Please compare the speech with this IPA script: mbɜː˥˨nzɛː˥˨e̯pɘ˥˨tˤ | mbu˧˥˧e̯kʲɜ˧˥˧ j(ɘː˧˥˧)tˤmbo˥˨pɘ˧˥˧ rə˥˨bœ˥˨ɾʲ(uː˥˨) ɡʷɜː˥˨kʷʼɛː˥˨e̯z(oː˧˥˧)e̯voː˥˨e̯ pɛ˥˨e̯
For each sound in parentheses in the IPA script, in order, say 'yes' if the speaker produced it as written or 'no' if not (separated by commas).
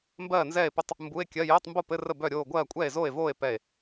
yes, no, no